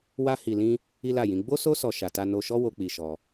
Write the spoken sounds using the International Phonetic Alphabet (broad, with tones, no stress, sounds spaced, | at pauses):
w a˦ h i˧ l ĩ˦ | i˦ l a˦˨ j ĩ˨˦ ɡ͡b o˦ s o˦ s ɔ˧ ʃ a˨ t a˧ n o˧ ʃ ɔ˦ w o˦ k͡p i˧ ʃ ɔ˧